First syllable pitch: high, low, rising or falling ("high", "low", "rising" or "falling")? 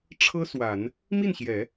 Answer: high